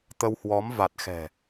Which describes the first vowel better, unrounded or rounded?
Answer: unrounded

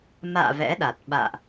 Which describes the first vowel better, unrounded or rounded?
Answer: unrounded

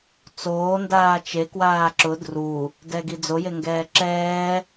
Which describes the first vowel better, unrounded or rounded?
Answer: rounded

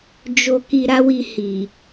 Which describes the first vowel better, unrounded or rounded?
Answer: rounded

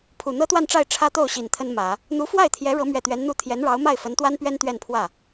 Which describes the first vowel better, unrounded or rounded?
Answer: rounded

